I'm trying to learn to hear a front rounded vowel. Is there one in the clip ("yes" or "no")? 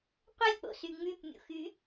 yes